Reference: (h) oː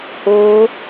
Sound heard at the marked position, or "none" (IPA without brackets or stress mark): h